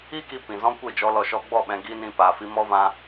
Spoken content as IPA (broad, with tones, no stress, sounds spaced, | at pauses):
i˦ k i˧ p ĩ˨ z ɔ̃˦ kʷ e˦˨ d͡ʒ ɔ˧ l ɔ˧ ʃ ɔ˧ ɡ͡b ɔ˦˨ ɓ ɛ̃˧ ɡ i˦ n ĩ˧ p aː˧ f i˦ m ɔ˦ v ã˦